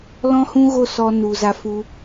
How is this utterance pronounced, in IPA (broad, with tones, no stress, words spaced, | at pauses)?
lɔ̃˦hũ˦ ɣo˦sɔ˧ nu˨ za˧fu˧